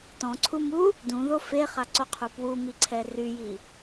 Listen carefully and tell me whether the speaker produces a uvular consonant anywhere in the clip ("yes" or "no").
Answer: yes